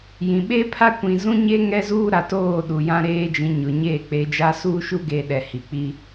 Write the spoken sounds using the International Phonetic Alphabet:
j ĩ˨ ɓ e˦ pʰ a˦ kʷ ĩ˨ z ũ˦ ɲ e˦ ŋ ɛ˦ z uː˦ ɾ a˨ t oː˦˨ ɗ u˨ j ã˦ ɾ eː˦ d͡ʒ ĩ˨˦ ɲ ʊ˨ ɲ eː˦˨ k͡p e˨˦ d͡ʒ a˦ s uː˦ ʃ u˦ ɡ e˨ ɗ ɛ˨ h i˨ k͡p i˦

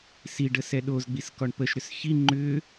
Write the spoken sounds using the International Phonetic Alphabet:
s i ɖ ə s ɛ ɗ o z ɡ͡b i s k ɔ ɳ p ə ʃ ɾ ʏ s ç i ŋ͡ǃ ʏ

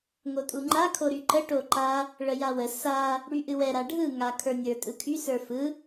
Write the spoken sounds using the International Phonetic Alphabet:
ŋ o tʼ u ŋ͡ǃ a kʰ o ɾ y ǃ ə ʈ o ǃ a | ɭ ə j a w ə s a | ɽ y ʔ ɨ w ɛ ɾ a ɖʱ ɯ ŋ a kʰ ə˞ nʲ ə˞ tʼ ɯ kʰ y s ə˞ f ɯ

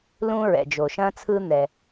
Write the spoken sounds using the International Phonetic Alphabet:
l ũ˧ ɹ ɛ̰˩ d͡ʒ o˩ ʃ ɐ̃˧ t͡sʰ ɯ˧ n̪ ɛ˩

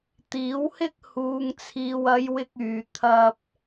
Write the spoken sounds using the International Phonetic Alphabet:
t̪ iː˨˥ w h ɪ˥ k̚ h uː˨ ŋ t͡sʰ iː˨ w ɐ˨˧ j w ɪ˥ k̚ yː˨ t̪ʰ ɐ˧ p̚

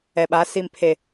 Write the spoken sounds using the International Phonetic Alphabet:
ɛ˨ ɓ a˨˦ s i˨ m pʰ e˨

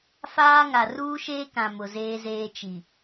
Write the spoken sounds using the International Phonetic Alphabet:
f aː˦ ŋ a˨ r uː˦ ʃ eː˦ k ã˨ m ʊ˨ z eː˦ z eː˦ t͡ʃ i˨

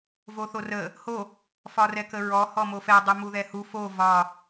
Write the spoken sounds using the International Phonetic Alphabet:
v o θ o r ə | h o | f ɒ r ɛ k ə ɹ ɔ h ɔ m o f ɛ dˤ u m u ð ɛ h u f o v ɒ

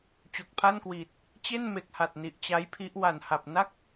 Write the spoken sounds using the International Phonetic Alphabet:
t͡ɕ o˨˩ k̚ pʰ a˥˩ n k w iː˨˩ t̚ | t͡ɕ e˥˩ n m e˨˩ k̚ h a˨˩ t̚ n i˨˩ ʔ t͡ɕ a˦˥ j pʰ i˦˥ ʔ w a˨˩ n h a˨˩ p̚ n a˥˩ k̚

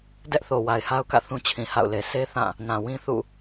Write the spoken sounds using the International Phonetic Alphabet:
d ɛ˦ ʔ θ o˨ w a˨ ɪ̯ h a˦ ʊ̯ k ä̰˦˨ θ ũ˦ t͡ɕʰ ĩ˨ h a̰˦˨ ʊ̯ l e˨ s e˦ θ ã˦˨ | n ã˨ w ĩ˦ θ ṵ˦˨

